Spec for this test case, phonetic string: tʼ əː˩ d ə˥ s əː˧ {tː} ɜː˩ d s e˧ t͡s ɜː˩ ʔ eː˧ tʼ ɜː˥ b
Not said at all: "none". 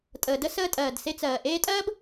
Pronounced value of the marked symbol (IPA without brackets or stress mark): tʼ